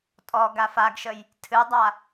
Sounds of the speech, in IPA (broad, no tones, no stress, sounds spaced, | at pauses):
tʼ ɔ ɡ a f a ɡ ʃ ə j | tʰ ɨ dˤ a